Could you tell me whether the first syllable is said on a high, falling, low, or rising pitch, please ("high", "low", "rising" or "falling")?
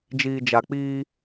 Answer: low